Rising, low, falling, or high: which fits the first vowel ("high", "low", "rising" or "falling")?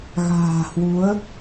low